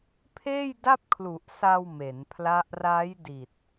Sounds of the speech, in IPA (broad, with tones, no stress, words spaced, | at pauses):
pʰeː˥˩jda˥˩p̚kʰlu˨˩ʔ sa˧w me˩˦npʰla˦˥ʔ ra˦˥jdi˨˩t̚